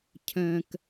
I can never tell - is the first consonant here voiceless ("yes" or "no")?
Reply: yes